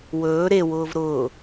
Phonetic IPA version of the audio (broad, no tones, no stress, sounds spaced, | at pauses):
w ɵː ɾ e w ʊː v ɾ ʊː